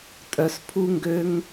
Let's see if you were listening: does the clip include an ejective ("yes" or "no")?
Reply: yes